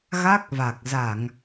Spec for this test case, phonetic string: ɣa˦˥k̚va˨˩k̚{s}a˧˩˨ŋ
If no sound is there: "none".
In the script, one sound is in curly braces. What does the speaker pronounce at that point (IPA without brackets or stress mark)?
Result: z